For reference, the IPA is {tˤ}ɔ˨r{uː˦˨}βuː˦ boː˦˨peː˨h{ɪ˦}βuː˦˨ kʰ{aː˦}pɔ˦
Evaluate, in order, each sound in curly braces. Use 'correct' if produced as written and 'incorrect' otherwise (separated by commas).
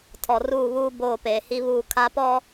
incorrect, correct, incorrect, incorrect